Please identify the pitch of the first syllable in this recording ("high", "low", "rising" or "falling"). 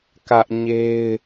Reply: high